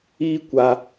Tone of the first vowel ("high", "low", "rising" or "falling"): high